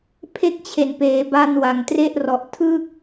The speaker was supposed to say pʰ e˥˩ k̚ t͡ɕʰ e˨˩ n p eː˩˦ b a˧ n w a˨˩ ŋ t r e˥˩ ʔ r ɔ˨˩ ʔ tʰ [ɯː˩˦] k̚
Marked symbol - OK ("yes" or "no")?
no